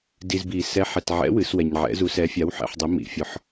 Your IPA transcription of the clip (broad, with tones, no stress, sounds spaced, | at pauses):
d i˨ z b i˨˩˦ s ɛ˨˥ ħ ɛ˨ t ʕ ɛ̰˨˥ w ɨ˨˩˦ s w ɛ˨ ɲ ʕ ɛ̰˨˥ z u˨˥ s ɛ˨˥ fʲ a˨˥ w ħ ɛ̰˨˩˦ ħ dˤ i˨˥ m ḭ˨˩˦ fʲ ɔ˨˥ ħ